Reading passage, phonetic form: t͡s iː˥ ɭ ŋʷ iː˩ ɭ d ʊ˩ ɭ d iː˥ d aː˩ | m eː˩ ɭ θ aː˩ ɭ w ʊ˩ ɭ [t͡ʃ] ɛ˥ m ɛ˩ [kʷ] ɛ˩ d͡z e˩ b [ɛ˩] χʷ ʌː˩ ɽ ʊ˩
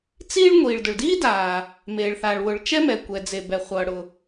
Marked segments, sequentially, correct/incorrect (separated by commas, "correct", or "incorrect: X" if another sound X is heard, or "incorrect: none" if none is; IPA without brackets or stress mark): correct, correct, correct